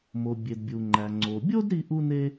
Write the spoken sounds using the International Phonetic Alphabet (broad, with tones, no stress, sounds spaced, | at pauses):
m o˩ bʲ e˩ d bʲ u˩ ŋ͡ǃ æ˩ ŋ͡ǀ o˩ bʲ o˥ d ɾ i˥ ʔ u˥ n e˥